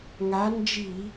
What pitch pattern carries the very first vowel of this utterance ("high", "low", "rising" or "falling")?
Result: rising